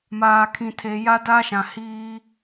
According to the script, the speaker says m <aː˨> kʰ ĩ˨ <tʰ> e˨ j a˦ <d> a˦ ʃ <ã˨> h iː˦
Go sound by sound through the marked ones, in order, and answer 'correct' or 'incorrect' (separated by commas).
correct, correct, correct, correct